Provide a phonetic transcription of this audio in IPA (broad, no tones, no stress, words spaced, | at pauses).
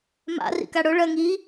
ma̰rḭka ɽʊ ɭɜ ŋi